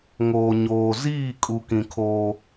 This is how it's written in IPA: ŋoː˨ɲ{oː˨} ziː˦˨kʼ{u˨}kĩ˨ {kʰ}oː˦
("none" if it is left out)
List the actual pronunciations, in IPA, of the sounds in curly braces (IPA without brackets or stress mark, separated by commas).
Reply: oː˨, u˨, kʰ